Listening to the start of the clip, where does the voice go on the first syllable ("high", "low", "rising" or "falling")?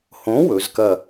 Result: rising